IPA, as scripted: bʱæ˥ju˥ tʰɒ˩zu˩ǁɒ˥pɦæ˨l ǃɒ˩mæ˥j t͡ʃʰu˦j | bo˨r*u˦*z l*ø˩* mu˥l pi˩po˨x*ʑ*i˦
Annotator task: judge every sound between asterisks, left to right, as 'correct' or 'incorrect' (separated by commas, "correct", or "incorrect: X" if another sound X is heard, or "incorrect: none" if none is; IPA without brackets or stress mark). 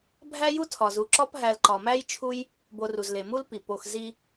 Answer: incorrect: u˩, incorrect: e˩, incorrect: z